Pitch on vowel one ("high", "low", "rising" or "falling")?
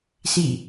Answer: falling